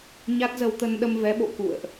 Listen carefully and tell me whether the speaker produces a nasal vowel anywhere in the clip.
no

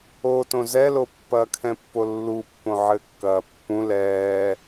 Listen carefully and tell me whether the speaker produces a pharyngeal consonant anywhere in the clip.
yes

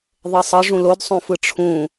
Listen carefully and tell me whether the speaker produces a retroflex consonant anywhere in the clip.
yes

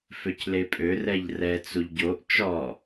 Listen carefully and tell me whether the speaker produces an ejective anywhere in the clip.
yes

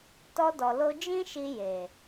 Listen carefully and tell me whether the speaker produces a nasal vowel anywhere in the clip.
yes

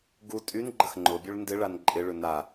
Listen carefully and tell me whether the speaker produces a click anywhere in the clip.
yes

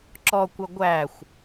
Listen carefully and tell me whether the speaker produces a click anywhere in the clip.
yes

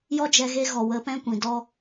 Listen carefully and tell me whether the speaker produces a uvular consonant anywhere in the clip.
no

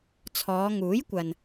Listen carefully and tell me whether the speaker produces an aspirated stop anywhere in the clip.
yes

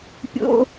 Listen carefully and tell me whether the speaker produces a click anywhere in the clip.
no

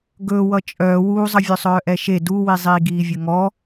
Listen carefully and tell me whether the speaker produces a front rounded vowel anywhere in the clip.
yes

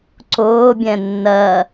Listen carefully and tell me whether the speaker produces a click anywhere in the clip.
yes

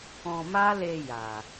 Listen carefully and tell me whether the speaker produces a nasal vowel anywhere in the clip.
yes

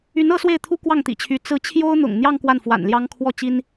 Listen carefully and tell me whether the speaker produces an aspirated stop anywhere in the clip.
yes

